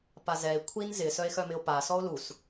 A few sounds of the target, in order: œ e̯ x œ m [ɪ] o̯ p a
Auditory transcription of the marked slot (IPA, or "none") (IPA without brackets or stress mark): ɪ